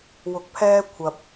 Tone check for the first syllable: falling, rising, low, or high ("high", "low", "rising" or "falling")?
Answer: rising